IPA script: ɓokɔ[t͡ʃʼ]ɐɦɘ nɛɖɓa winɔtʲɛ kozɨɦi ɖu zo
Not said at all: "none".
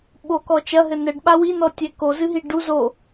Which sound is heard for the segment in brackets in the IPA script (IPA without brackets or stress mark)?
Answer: t͡ʃ